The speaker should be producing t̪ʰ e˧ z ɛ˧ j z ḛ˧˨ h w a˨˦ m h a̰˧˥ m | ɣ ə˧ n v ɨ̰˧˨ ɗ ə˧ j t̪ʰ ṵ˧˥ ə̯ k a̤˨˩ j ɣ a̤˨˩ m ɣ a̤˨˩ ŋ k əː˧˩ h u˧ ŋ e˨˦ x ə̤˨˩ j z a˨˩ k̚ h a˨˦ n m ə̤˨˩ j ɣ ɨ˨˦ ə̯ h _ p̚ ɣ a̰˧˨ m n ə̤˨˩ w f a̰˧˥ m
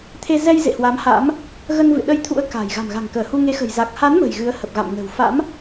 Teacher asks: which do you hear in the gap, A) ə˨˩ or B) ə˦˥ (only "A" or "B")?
A